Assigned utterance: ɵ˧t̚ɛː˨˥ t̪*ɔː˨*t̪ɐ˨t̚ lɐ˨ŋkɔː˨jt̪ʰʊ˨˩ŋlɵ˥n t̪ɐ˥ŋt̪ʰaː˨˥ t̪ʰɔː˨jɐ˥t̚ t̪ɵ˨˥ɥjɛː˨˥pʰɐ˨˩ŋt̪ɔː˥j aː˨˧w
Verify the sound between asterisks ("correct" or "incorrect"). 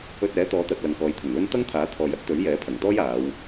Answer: incorrect